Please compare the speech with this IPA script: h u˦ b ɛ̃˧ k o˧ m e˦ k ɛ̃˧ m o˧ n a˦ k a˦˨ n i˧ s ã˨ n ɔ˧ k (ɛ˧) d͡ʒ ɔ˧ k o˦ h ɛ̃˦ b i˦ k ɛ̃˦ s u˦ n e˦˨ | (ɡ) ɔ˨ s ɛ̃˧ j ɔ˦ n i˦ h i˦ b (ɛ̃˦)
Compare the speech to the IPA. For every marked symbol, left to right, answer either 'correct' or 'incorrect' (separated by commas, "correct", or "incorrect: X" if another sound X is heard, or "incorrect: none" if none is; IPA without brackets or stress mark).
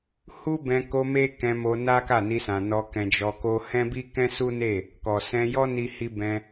incorrect: ɛ̃˧, incorrect: k, incorrect: ɛ̃˧